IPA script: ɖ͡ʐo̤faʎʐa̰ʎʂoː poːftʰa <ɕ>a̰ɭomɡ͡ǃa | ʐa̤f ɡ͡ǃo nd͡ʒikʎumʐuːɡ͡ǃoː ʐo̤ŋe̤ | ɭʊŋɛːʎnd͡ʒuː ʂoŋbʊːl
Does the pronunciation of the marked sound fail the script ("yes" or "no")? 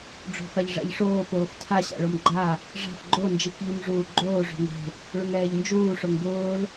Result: no